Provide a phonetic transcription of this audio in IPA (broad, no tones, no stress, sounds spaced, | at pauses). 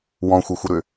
w ɔ̃ xʷ ɐ xʷ ɪ ɾ ʏ